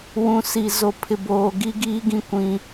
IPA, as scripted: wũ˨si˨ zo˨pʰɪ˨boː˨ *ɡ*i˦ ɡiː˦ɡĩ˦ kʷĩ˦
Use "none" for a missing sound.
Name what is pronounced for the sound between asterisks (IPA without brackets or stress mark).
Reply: ɡ